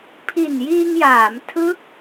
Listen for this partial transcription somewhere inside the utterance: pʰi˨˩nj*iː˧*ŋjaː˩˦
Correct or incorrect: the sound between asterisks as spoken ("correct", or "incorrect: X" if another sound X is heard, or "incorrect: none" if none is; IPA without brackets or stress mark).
correct